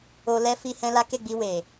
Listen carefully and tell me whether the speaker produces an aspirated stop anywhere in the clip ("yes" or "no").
no